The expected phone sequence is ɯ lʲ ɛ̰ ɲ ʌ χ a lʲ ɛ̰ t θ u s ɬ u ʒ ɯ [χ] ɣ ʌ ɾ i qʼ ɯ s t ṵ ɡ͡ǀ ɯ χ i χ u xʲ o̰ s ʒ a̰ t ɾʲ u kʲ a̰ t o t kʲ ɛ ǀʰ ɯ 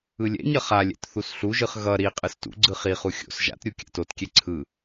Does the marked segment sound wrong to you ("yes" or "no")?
no